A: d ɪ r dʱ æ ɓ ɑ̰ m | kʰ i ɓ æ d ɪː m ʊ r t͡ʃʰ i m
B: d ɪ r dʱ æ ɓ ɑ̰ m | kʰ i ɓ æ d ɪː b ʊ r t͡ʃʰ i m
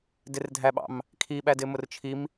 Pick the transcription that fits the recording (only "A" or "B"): A